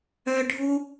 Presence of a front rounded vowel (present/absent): present